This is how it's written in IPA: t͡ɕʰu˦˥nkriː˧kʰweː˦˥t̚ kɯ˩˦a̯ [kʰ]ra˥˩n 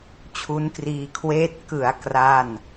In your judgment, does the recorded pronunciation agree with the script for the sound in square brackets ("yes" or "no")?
no